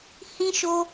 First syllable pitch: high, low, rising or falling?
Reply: high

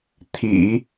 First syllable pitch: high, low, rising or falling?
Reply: low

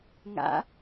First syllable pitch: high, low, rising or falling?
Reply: rising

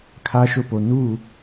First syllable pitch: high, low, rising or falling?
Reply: high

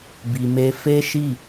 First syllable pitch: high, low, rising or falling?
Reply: low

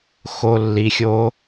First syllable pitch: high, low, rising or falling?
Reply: low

